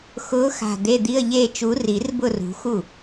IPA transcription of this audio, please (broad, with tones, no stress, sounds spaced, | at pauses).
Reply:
x ʊː˨˦ x a̤˨˩ d̪ e˧˥˧ d̪ i˧˥˧ ə̯ ʎ eː˥˧ t͡ʃ u˨˦ r i˨˩˦ r b ʊ˥˧ r ṳ˨˦ x u˥˩